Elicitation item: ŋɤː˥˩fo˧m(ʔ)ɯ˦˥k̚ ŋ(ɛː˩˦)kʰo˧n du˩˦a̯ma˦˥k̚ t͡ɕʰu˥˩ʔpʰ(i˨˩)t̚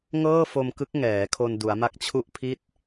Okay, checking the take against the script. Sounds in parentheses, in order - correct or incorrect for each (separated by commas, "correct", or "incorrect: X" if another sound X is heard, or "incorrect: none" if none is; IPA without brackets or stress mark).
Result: incorrect: k, correct, incorrect: i˥˩